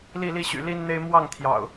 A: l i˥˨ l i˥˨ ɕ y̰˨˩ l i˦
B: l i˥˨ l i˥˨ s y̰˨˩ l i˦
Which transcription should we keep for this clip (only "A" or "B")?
A